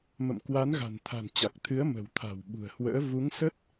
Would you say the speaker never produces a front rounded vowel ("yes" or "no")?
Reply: yes